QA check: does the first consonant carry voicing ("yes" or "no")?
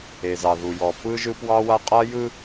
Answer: yes